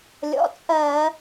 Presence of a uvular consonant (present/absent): absent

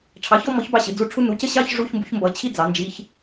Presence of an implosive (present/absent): absent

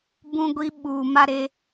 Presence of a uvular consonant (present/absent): absent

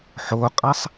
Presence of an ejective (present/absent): present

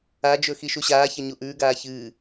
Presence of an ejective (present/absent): absent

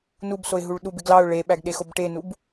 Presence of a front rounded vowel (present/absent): absent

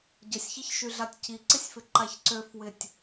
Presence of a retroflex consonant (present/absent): absent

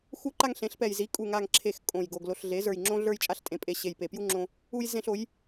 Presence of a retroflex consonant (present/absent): absent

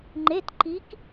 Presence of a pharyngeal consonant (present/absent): absent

